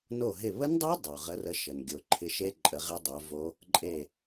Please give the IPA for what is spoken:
no˧˩ɦɪ˧˩βə˦˥ndˤo˦˥ dˤo˩ʁə˨˦rə˨˦ʃə˩n ɡʲo˩ǃʰɪ˨˦ʃe˦˥ ǃʼə˨˦ʁɪ˦˥dˤo˨˦vo˦˥ | ǃʼe˧˩

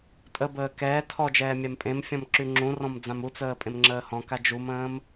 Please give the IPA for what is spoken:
tʼəbəː kɛː tʰɔd͡ʒɛː mʲampʼẽmfʲɔ̃m ǁyŋ͡ǁũrɔ̃m d͡zãmut͡səː pʼẽmŋ͡ǁəːhɔ̃ka d͡ʒumə̃ːm

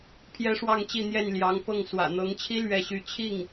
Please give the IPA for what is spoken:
pʰjɛ˥ʂwɑ˥˧ŋt͡ɕi˥˧n̪jɛ˥˩n ljɑ˧˥ŋpɤ˥˩ŋ swä̰˨˩n̪ɤ˧˥ŋt͡ɕʰi˥ lɥɛ˥˧ɕy˥˧ t͡ɕʰi˥˩ŋ

